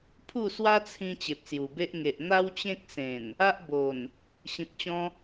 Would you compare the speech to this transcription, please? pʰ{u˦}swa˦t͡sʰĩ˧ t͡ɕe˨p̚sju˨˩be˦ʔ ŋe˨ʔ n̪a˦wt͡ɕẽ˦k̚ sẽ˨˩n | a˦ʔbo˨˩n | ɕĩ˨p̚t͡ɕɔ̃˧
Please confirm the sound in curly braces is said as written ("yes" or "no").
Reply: no